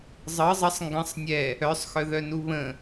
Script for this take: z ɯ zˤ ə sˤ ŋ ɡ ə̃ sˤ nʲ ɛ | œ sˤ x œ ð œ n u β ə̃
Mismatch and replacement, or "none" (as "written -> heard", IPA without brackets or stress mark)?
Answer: z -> zˤ